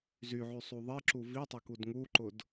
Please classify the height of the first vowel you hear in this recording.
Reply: high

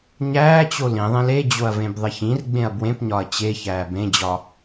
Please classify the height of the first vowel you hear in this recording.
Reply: low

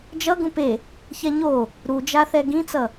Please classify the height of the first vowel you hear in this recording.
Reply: mid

